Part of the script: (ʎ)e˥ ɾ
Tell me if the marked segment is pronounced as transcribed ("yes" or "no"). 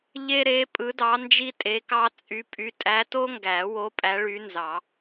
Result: yes